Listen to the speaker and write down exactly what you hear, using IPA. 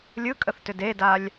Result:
lʲ ɯ kʼ ə θ t ʏ d e d a lʲ

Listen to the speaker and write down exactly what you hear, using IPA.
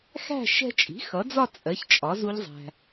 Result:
x æ̤˥˧ ʃ ɛ̤˧ t͡ʃʼ i̤˩˥ x ʌ˩˥ d͡z ɒ˥˧ t͡sʼ ɜ˩˥ ç t͡ʃʼ ɒ˩˥ z u˦˥ ʎ zˤ æ̤˧

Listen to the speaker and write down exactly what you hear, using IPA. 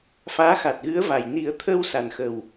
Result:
f aː˧˥ x a˨˩ t̚ ɣ ɨ˧˥ ə̯ v a˨˩ j n i˨˩˦ ə̯ t̪ʰ əː˧ w s a˨˩ n x ə˨˩ w

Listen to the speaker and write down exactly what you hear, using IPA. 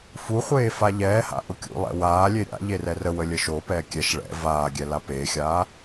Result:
f u χʷ eː f a ʎ ɛː h a̰ ʔ ʊ kʲ ṵ lˠ ɛ̰ w aː lʲ e ɾʲ a̰ ʎ e r ɛ r ə w ə lʲ ə ʃ o p ɛː kʲ ɛ ʃ ɭ ɛ̰ v aː ɡʲ ɛ l a p eː xʲ aː

